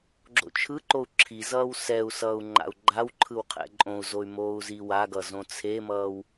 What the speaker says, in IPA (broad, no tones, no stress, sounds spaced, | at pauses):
ɡ͡ǁ o̰ t͡ʃʰ ɯ ǃ o u̯ ǁʰ i z ʌː w s ɛ u̯ s ʌː u̯ ŋ͡ǃ a̰ u̯ ɡ͡ǃ a w ǃʰ ɯ w qʰ ɛ̰ ǃʼ õ u̯ z o y̯ m oː u̯ z i w a ɡ ʌ z õ t͡sʰ e m ʌː w